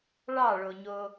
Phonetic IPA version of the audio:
ɭ ɑ ɭ o ɲ o

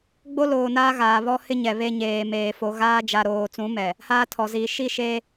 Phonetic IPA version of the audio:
ɡ͡b o˦ l oː˨ n aː˦ ɣ aː˨ β ɔ˦ h ɪ˦ ɲ ɛ˨ β e˦ ɲ eː˨ m eː˨ f o˨ ɣ aː˦ d͡ʒ a˨ ɾ oː˨ t͡s ũ˨˦ m ɛ˨ | h aː˦ tʰ ɔ˨ z iː˨ ʃ i˦˨ ʃ eː˦

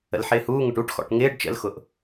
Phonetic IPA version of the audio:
ə̰ l ħ ɪː h uː ŋ ʊ ʈ u ʈ x ɔ̰ ʈ ŋ ɪː ɖ t͡ʃ ə̰ l x ʊ ʔ

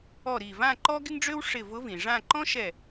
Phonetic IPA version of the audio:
ɔ˧˩ ɾ i˧˩ v ã˥˧ ǃ ɔ˥ ɡ ɪ˥ ŋ ɖ͡ʐ ø˥ w ʂ ɪ˧˩ v ʊ˧˥ v ĩ˩ ʐ ã˥˧ ǃ ɔ̃˥ ʃ ɛ˧˩

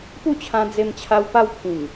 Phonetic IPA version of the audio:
p u˥˧ t͡ɕʰ ã˧ d͡z e˧ m t͡ɕʰ a˧ w p a˦ w pʰ ĩ˨˩ ŋ

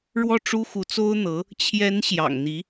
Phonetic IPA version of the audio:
ɻ w ɔ˥˩ ʈ͡ʂ u˥ x u˧˥ t͡s o˥ ʊ̯ n̪ ɤ˧˥ | t͡ɕʰ j ɛ˧˥ n ɕ j ɑ̰˨˩ ŋ n̪ i˧˥

